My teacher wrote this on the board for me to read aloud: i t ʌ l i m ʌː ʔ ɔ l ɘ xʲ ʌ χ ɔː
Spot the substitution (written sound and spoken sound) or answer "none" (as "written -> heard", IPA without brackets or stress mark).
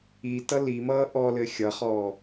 none